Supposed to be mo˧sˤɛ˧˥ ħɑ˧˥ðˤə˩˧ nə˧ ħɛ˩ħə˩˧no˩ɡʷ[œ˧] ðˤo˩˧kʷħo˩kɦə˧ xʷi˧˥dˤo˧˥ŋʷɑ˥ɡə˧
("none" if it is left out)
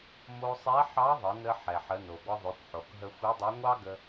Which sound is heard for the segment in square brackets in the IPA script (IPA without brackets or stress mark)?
ə˧